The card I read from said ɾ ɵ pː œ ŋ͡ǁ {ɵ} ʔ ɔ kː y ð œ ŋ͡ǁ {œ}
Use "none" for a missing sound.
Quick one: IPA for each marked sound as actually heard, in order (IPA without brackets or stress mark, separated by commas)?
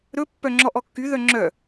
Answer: ɔ, œ